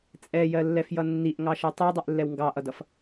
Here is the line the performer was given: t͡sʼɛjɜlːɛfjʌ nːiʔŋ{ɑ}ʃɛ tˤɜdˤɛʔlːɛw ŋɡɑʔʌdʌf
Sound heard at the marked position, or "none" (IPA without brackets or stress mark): ɑ